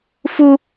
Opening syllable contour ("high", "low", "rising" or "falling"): high